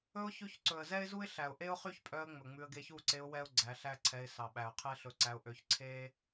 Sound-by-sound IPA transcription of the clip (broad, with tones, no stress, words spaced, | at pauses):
ɵ˦ʊ̯ çʉ˧çǀɵ˨ə̯ zɛ˦ɪ̯zu˦ɪ̯ ɬæ˨ʊ̯ʔe˦ʊ̯χy˦çpʼœ˧ə̯ ŋ͡mɵ˨ŋ͡mʉ˧ə̯ ɡe˧çu˦˨ǀe˧ʊ̯ wɛ˦ʊ̯ɡ͡ǀæ˨˦ɬæ˦ǀʰɛ˧ɪ̯ sɑ˨ɓæ˨ʊ̯ qʰɛ˦ɬɵ˧ǀæ˧ʊ̯ ʔø˧ç ǀʰe˦